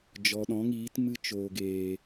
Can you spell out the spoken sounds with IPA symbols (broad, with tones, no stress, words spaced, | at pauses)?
d͡ʒɔ˨ɗɔ̃˨˦ŋiː˨˦tmɨ˦ t͡ʃoː˨ɡeː˨